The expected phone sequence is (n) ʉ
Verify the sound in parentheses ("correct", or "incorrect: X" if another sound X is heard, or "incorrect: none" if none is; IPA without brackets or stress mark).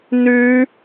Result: correct